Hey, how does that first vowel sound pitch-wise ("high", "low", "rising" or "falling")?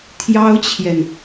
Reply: high